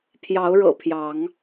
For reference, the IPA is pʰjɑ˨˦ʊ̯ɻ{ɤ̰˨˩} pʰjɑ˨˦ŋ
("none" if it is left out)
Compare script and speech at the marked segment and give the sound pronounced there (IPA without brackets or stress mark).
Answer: ɤ̰˨˩